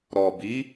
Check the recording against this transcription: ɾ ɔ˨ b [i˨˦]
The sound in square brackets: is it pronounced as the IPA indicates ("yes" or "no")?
yes